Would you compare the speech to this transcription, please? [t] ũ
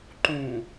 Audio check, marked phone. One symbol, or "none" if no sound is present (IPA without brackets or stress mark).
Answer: ǃ